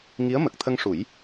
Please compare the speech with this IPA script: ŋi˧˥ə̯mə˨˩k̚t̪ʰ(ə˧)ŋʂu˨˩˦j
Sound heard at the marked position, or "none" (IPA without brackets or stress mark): ə˧